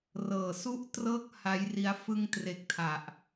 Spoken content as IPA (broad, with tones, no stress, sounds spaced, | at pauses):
r ɤː˨˩ s u˥˩ ʔ t r ɤː˥˩ k̚ h a˦˥ j r i˦˥ a̯ f ɯ˧ ŋ t r e˨˩ k̚ tʰ a˨˩ ʔ